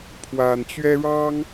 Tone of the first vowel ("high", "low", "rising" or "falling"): low